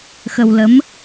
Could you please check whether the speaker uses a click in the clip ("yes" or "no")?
no